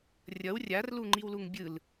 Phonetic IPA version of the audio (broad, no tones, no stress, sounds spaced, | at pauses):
rʲ ʌ w rʲ a r l u ŋ͡ǃ i w l u ŋ bʲ ɯ l